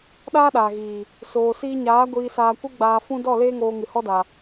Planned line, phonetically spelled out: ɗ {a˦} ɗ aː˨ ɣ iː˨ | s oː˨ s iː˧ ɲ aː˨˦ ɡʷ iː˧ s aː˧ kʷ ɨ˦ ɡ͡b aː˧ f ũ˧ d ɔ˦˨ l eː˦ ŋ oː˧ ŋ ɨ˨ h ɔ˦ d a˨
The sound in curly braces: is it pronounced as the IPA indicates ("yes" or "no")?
no